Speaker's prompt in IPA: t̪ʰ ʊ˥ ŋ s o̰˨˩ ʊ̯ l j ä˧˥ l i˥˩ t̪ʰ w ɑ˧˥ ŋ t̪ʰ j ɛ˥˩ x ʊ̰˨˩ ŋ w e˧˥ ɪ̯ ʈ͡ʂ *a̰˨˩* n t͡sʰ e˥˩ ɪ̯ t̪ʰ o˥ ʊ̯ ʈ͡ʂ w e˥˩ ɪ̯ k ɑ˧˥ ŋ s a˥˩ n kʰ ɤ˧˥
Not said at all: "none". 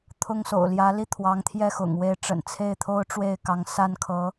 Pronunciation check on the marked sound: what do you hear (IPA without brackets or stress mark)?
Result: ə̰˨˩